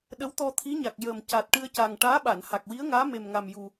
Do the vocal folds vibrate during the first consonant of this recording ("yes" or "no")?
yes